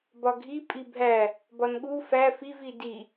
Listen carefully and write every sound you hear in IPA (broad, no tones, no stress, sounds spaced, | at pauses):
b ɒ ɡʱ i pʼ i bʱ æ | b ɒ n ɠ u f æ f i v i d i